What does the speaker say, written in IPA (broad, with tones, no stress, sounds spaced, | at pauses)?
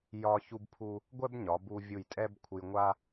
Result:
j ɒ˥ ç u˥ b pʰ u˥ | ɡʷ ɛ˥ b ɲ ɒ˩˧ b u˧ vʲ u˧˩ j tʼ ɛ˥ b kʷʰ ɨ˧ j ŋʷ a˥